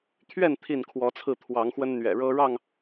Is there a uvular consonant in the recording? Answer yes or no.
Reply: no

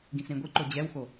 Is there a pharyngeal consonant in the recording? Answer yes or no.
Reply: no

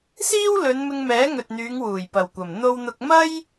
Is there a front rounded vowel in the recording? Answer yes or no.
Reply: yes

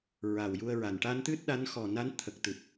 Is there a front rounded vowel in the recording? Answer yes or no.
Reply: no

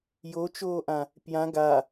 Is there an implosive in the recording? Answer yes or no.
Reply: no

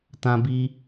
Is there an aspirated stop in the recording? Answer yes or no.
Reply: no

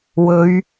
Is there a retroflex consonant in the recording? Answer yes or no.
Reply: no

